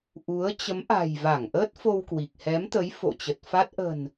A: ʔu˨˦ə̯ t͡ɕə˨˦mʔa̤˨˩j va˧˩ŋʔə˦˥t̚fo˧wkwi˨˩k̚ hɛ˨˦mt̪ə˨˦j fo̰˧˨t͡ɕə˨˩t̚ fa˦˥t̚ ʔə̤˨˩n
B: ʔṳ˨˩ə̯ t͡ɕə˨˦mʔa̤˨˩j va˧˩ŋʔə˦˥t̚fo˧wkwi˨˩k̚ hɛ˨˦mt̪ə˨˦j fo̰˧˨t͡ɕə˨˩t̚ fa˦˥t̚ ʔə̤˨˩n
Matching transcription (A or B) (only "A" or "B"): A